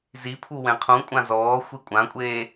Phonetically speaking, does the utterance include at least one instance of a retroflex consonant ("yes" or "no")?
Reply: no